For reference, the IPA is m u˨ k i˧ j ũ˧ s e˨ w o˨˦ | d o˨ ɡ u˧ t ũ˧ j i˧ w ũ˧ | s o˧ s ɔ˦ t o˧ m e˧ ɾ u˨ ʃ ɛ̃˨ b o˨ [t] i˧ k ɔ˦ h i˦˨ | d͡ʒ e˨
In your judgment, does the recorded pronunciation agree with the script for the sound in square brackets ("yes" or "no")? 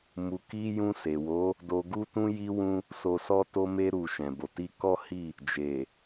yes